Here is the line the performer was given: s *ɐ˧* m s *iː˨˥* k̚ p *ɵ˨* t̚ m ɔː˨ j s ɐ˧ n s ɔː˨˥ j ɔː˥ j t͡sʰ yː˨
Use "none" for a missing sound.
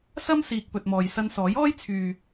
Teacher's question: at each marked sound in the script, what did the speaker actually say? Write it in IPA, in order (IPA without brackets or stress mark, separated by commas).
ɐ˥, iː˨, ɵ˨